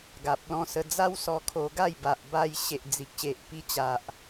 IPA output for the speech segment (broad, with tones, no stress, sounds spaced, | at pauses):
ɡ a˨ p̚ l ɔ̃˧ s ə˧ d͡z a˦ w s ɔ˧ kʰ o˧ ɡ a˥˧ j b a˨ ʔ b a˧ j ɕ e˨ ʔ d͡z i˨ k̚ ɕ e˨ ʔ p i˧ t͡ɕ a˨ ʔ